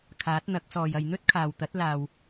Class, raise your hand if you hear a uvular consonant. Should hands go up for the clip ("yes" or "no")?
no